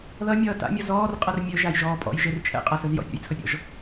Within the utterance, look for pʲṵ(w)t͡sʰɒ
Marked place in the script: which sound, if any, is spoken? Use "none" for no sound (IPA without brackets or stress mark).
j